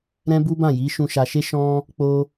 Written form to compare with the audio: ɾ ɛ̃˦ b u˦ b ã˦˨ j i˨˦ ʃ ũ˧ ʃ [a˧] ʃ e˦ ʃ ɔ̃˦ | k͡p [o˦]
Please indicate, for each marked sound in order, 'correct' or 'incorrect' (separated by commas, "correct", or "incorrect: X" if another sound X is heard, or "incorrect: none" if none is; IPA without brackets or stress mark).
correct, correct